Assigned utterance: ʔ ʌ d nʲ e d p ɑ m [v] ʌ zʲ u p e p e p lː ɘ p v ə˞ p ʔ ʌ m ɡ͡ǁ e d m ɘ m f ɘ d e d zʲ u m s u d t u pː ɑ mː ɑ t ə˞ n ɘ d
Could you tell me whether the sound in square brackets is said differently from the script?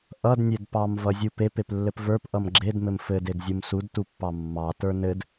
no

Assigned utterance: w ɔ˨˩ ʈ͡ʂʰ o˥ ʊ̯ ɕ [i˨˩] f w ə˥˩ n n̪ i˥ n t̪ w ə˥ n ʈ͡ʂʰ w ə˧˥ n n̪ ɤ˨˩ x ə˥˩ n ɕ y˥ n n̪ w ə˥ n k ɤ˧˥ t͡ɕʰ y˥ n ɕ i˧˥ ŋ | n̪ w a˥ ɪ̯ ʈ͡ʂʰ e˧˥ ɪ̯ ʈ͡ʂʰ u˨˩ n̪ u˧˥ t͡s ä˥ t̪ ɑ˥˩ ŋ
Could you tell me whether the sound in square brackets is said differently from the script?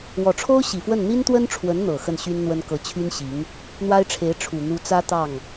no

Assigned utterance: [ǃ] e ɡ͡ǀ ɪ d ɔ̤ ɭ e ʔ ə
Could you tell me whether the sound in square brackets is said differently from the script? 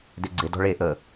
yes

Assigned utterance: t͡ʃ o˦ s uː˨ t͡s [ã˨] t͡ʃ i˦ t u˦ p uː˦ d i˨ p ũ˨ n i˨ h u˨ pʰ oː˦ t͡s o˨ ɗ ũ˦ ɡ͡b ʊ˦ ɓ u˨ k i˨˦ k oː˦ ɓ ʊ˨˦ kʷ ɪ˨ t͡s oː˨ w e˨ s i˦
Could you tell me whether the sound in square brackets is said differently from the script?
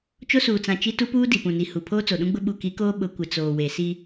no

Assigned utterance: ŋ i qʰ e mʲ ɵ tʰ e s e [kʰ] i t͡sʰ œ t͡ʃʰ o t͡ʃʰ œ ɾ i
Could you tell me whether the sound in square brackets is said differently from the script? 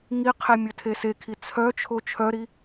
no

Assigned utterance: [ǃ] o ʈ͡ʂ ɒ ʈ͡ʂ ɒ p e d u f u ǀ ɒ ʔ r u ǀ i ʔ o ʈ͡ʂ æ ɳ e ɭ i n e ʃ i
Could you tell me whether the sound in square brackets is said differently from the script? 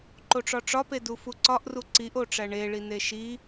no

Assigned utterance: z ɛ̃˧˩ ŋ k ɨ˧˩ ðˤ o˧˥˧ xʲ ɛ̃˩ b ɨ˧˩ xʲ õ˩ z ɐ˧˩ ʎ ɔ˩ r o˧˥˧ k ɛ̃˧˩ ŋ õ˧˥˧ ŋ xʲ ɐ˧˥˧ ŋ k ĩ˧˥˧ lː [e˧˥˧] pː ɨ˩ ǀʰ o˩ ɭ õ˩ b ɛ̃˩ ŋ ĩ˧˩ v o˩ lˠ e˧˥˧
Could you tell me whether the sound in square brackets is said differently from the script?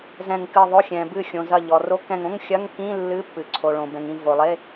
yes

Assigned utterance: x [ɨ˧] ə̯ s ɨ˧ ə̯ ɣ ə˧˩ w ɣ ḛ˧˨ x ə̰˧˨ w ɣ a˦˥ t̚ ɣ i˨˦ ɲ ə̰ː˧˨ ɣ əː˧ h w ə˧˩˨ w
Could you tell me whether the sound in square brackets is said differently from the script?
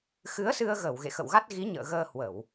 yes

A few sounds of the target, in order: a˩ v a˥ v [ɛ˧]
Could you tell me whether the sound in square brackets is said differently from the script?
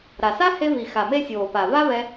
no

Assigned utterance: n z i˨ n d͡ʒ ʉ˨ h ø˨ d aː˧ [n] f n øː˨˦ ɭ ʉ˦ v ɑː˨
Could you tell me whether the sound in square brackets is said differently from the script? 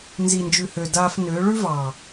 yes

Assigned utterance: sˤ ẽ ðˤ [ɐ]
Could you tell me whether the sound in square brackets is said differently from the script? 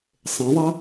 no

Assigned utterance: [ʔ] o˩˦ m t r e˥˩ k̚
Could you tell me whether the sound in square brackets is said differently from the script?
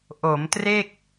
no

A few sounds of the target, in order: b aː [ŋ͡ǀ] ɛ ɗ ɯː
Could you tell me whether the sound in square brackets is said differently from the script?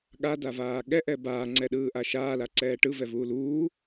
no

